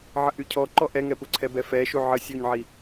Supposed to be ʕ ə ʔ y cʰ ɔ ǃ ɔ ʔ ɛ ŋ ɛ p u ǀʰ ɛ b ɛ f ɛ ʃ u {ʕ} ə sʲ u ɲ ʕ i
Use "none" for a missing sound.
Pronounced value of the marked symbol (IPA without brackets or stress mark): ʕ